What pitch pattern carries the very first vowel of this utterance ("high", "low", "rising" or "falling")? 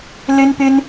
high